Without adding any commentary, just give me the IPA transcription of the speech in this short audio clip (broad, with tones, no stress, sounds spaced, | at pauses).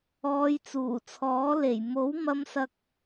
ɔː˨˧ j t͡s uː˨˩ t͡sʰ ɔː˨˥ l e˨˩ j m o˨˥ w m ɐ˧ m s ɐ˧ k̚